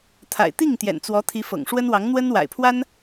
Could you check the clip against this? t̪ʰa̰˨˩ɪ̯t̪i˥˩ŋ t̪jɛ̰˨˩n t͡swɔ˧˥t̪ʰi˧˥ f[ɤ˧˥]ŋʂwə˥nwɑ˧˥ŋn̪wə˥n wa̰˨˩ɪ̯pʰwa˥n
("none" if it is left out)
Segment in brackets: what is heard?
ɤ̰˨˩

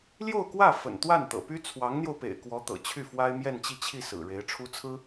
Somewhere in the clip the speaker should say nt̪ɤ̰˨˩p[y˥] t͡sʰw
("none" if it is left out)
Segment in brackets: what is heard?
y˥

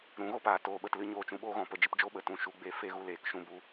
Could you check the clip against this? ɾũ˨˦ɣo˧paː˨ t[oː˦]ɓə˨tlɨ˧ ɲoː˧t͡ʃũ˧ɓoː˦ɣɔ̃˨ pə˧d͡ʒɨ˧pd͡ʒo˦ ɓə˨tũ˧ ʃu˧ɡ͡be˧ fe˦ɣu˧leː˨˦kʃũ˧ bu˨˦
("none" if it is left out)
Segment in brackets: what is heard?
oː˨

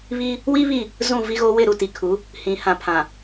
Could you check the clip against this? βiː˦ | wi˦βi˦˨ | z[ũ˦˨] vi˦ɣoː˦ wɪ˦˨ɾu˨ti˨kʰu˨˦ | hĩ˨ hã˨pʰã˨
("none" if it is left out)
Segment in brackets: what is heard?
ũ˦˨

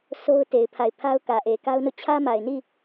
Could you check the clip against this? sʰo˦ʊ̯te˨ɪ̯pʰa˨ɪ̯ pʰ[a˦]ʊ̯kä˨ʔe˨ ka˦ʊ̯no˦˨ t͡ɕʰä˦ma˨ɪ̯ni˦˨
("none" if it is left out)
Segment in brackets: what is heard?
a˦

